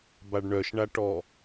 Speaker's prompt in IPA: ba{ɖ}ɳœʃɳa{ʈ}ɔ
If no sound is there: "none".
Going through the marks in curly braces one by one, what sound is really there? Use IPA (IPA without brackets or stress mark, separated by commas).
ɖ, ʈ